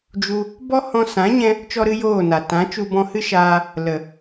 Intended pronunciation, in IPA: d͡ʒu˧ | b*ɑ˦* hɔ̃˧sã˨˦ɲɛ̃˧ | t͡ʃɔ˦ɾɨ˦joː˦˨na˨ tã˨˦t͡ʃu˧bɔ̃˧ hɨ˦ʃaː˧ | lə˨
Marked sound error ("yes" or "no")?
yes